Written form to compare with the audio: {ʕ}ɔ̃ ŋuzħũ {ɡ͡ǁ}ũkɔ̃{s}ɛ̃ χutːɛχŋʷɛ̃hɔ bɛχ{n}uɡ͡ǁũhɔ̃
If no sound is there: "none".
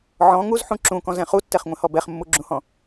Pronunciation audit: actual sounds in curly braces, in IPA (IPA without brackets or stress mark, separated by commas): ʕ, ǁ, z, mː